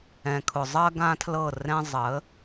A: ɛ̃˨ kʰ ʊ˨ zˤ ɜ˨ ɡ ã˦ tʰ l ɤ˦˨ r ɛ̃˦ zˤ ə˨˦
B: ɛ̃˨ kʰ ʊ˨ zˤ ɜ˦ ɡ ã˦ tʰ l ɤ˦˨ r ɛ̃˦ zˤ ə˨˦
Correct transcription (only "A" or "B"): B